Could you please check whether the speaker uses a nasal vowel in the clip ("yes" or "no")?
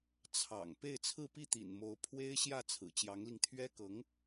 no